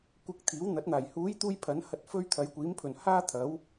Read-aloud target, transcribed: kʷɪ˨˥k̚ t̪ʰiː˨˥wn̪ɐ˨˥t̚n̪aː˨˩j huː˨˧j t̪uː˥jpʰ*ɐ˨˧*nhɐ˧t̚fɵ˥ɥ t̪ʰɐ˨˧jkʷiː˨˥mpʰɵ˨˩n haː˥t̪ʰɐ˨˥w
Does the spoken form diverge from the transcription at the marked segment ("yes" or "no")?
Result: yes